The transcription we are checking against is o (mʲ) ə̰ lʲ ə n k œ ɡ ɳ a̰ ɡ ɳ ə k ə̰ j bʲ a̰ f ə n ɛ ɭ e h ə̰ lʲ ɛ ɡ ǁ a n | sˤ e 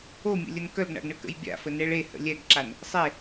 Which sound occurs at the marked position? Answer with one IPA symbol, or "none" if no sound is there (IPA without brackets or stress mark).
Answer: mʲ